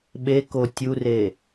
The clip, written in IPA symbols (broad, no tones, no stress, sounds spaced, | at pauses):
ɓ e k o tʲ u r e